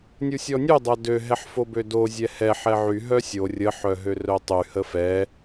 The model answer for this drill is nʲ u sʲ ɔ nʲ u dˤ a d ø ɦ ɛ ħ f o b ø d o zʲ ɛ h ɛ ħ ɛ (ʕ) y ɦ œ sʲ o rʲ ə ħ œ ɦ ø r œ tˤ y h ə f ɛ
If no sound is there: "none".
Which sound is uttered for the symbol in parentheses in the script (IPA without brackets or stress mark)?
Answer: ʕ